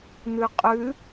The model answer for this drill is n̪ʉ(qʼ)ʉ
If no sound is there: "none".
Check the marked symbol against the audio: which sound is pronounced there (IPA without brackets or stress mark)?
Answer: qʼ